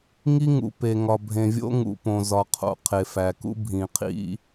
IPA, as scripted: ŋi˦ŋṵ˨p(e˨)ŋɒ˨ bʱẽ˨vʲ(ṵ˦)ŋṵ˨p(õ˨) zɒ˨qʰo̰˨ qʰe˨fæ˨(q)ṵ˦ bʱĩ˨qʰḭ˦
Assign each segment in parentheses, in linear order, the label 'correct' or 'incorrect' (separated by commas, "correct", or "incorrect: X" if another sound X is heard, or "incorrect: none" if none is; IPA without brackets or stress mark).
correct, incorrect: o̰˦, correct, incorrect: k